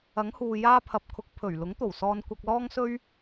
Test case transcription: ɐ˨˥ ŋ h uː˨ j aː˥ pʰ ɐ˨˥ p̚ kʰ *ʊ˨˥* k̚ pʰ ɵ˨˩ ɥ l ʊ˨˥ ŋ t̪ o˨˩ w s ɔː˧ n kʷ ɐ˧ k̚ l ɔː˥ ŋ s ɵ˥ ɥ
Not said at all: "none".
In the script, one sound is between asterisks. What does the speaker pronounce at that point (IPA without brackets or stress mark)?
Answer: ʊ˨˥